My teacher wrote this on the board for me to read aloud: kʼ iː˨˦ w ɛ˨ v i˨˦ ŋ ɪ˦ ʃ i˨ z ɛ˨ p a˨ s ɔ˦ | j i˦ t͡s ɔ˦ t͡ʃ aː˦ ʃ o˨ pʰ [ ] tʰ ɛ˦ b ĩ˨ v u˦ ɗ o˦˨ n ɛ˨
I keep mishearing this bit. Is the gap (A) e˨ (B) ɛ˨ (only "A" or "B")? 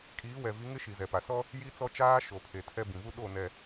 A